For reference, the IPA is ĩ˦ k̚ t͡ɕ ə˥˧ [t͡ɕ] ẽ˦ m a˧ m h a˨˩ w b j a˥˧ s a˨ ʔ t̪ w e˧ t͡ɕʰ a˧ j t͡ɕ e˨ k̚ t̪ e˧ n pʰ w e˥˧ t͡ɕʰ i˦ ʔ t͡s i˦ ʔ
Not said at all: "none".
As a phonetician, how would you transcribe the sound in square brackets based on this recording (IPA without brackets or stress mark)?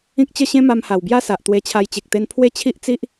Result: ɕ